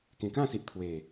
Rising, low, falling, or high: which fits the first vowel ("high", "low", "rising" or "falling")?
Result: low